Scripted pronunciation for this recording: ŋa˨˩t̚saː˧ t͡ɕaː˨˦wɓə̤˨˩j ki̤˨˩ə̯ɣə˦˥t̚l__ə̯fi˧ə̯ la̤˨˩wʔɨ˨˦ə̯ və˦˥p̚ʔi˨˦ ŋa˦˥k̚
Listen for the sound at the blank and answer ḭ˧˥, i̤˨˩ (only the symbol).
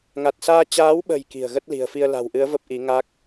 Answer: i̤˨˩